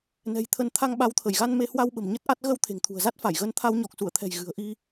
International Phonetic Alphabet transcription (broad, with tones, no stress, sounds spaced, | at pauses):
n ɛ̤˨˩ j t̪ʰ ə˨˦ n t̪ʰ a˧ ŋ ɓ a˨˦ w t̪ʰ ə˧˩ j ɣ a˧ n m e˧ h w a˧ w ɓ ə̤˨˩ m ɲ ə˦˥ t̚ ʔ a˦˥ t̚ ɣ ə˧ w t̪ʰ e̤˨˩ ŋ t̪ʰ ṳ˨˩ ə̯ z a˦˥ t̚ f a˧˩ j ɣ ə˨˦ n t̪ʰ a˧ w ɲ ɔ˨˩ k̚ s u˧˩ ə̯ t̪ʰ ɛ̤˨˩ j ɣ ɨ̤˨˩ ə̯ ʔ i˧